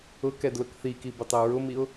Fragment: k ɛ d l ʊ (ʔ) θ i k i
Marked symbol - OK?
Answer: no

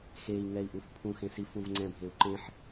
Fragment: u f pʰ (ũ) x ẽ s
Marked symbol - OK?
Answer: yes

